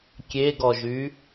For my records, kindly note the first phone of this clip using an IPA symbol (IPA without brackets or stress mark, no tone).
kʲ